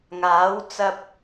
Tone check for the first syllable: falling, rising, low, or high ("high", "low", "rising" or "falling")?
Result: rising